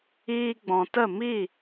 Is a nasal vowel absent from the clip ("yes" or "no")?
no